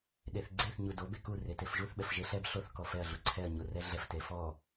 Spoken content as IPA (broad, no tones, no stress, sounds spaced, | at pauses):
ɗ e θ ɡ͡ǀ e θ ɲ u d o b e k u r e t e f ʒ u θ ɓ ɛ f ʒ e ɬ ɛ b ɬ o θ k ɔ f ɛ ɐ̯ ɮ u ǀʰ ɛ ɐ̯ ɲ o r ɛ ɮ ɛ f t e f ɔ